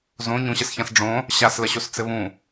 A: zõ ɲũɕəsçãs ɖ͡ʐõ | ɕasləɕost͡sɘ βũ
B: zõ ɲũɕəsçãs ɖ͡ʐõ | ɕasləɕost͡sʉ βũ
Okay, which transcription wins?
A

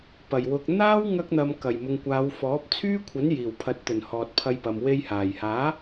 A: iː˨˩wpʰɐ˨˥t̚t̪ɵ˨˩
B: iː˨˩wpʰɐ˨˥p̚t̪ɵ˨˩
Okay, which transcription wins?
A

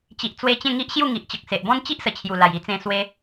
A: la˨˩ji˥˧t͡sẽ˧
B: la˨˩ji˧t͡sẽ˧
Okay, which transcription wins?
B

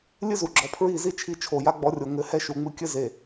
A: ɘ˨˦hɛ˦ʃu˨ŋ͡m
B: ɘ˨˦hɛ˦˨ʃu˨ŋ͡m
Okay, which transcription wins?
A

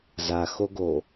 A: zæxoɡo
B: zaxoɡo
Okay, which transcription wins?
B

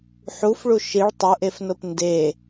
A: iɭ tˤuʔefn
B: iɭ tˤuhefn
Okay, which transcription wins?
A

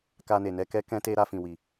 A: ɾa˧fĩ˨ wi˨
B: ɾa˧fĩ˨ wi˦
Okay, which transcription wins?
A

